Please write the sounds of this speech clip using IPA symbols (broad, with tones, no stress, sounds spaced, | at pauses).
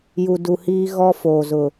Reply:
j u˨ d u˨ h iː˦ ɣ ɔ˦ f oː˨ z ʊ˨